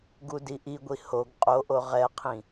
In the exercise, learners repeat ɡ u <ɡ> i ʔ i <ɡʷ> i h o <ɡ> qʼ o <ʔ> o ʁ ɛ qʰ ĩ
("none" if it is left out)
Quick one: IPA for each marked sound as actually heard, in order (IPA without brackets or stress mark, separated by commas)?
d, ɡʷ, ɡ, ʔ